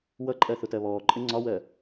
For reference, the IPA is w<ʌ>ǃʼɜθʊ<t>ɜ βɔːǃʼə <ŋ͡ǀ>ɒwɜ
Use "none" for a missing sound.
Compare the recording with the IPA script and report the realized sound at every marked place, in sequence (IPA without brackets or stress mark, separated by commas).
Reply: ʌ, t, ŋ͡ǀ